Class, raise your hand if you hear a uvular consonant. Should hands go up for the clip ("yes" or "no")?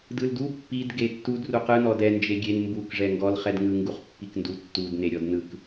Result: yes